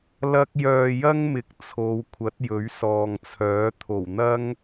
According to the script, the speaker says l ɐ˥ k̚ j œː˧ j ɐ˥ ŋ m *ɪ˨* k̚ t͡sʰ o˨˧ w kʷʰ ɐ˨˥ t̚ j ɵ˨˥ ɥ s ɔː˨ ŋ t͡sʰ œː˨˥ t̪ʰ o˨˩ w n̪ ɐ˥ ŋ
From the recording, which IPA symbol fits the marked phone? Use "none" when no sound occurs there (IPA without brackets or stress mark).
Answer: ɪ˨˥